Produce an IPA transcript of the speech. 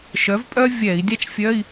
ʃ œ˩˥ v pʼ œ˥ vʲ ɛ˧˩˧ i̯ dʲ a˥ t͡ʃ fʲ œ˧˥˧ i̯

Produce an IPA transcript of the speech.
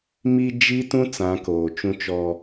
m i˦ d͡ʒ i˦ t ũ˦ t͡s ã˨˦ k oː˨ t͡ʃ ũ˦ t͡ʃ ɔ˦

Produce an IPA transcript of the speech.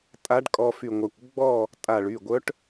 tʼ a˧˥ ɖ kʼ ɔ˧ f y˧˩ ŋʷ a˧˩ kʷ ɡ͡b ɔ˥˨ | tʼ a˧˩ ɭ y˩˧˩ ɡʷ œ˧˥ ʈ

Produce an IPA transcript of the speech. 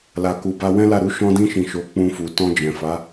l a˨ k u˨ b a˧ w ɛ̃˦ l a˦˨ ɾ u˧ ʃ ɔ̃˧ d ĩ˧ ʃ ĩ˨ ʃ o˨˦ k͡p ũ˧ f u˨ t ɔ̃˧ d͡ʒ ɛ̃˨ f a˨˦

